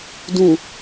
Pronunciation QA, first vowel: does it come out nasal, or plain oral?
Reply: nasal